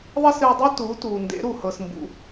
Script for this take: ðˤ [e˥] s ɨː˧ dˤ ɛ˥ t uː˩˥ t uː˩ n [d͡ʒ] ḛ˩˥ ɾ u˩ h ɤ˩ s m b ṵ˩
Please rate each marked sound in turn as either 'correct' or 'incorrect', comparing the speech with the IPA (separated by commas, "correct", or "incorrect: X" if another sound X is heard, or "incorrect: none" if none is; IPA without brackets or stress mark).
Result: correct, incorrect: d